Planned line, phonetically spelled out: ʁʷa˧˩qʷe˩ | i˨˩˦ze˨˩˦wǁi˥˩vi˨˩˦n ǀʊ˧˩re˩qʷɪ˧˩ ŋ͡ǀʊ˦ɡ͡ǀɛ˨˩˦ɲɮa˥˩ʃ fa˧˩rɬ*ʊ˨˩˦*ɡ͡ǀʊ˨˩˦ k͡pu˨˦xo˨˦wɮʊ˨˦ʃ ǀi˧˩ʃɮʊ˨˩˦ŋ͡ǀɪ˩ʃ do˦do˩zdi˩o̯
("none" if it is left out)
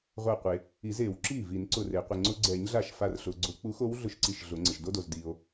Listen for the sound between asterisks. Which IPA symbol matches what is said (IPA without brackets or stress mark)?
ʊ˩